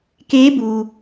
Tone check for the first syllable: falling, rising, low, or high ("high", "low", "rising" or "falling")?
rising